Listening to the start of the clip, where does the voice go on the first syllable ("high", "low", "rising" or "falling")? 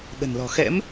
low